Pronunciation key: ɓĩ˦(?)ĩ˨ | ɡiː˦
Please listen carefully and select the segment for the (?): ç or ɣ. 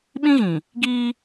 ɣ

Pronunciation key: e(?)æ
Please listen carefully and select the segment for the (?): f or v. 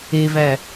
v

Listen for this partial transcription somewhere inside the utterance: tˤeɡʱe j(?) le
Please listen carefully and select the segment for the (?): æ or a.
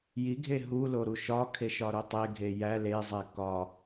æ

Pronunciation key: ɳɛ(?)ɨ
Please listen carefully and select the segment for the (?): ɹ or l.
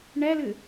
l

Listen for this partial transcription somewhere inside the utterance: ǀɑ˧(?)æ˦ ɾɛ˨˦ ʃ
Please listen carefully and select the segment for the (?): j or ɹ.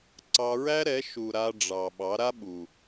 ɹ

